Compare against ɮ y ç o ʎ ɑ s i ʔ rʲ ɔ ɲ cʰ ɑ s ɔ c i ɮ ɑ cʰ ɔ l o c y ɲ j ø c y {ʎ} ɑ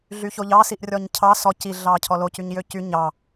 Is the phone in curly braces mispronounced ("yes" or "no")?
yes